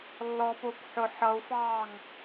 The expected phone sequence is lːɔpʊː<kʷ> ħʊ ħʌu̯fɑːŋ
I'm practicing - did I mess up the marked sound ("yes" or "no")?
no